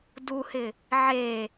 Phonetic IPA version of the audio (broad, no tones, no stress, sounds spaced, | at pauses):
d u h ɪ | ʕ e